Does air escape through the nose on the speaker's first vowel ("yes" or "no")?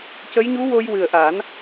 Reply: no